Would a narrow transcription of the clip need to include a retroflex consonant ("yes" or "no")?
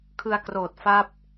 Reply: no